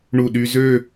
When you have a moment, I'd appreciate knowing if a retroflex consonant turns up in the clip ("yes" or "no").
yes